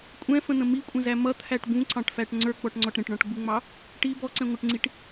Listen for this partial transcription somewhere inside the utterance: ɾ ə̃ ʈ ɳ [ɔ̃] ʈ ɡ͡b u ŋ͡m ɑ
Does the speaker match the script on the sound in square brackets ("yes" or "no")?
yes